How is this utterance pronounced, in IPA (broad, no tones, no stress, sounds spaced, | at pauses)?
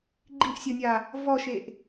ɡ͡ǃ i ʔ sʲ o nʲ a | v ɔ ʃ e ʔ